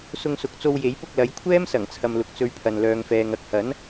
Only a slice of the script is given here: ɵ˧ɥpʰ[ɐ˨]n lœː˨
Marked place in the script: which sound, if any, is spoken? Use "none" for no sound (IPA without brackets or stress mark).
ɐ˨